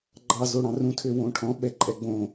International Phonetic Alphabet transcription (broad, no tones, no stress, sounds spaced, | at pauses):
ɡ͡ǃ ɑ z o ɽ ɑ̃ r ũ tʰ ø w õ ʈʰ ɔ̃ ɓ ɛ ǃʼ ɛ ɡ͡b õ